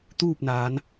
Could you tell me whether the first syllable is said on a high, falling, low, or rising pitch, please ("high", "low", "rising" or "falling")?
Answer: falling